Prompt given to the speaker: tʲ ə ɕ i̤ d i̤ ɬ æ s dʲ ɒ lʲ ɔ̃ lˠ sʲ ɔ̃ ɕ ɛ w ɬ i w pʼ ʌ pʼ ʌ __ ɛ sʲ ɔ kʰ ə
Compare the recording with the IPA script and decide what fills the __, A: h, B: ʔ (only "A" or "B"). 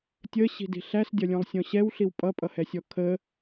A